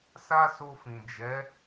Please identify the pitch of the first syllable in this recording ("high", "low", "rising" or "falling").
high